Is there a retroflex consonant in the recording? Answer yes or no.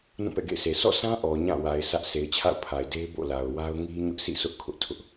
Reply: no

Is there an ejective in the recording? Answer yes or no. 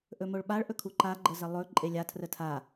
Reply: yes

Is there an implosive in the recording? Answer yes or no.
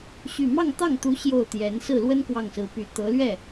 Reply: no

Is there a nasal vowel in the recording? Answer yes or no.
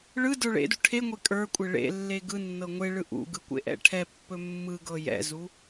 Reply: no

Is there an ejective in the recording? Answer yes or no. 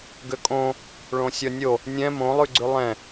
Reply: yes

